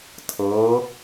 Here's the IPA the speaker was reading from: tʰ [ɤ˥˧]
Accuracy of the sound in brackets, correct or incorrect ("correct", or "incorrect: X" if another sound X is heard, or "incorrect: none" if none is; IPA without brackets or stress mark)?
incorrect: ɤ˩˧